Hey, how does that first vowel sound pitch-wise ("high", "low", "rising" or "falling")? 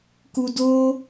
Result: low